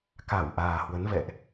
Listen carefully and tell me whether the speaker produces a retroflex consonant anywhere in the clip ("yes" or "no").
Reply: no